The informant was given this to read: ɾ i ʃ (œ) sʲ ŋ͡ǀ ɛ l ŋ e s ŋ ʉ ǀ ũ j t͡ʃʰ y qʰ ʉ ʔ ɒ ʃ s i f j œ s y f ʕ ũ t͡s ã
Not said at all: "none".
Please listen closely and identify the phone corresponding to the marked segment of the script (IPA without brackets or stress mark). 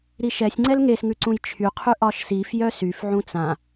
ɛ